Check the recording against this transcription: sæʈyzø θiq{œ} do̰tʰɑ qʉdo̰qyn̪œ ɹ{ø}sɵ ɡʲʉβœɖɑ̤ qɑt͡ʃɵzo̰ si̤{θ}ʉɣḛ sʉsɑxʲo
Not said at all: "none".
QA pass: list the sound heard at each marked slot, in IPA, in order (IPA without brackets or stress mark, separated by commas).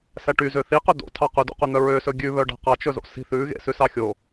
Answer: ø, ø, θ